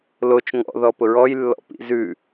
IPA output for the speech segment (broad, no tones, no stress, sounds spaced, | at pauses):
l o t͡ʃ ŋ ɔ̰ ð ɔ p ʊ ɹ ɔ j lː ɔ̰ p ḭ z ʉ